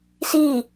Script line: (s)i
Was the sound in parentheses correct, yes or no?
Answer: yes